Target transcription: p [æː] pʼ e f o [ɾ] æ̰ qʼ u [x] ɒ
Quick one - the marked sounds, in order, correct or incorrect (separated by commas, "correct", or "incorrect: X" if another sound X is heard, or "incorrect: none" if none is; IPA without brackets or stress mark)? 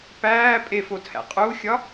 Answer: correct, incorrect: tʰ, incorrect: xʲ